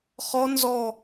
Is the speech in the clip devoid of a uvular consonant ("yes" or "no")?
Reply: no